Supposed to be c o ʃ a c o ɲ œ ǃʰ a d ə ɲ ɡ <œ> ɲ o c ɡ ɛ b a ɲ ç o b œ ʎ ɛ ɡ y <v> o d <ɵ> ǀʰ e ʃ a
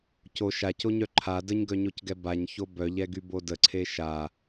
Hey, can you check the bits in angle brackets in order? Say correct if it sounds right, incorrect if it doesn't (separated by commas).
correct, incorrect, incorrect